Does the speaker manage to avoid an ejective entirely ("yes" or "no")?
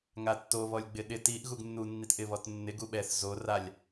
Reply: yes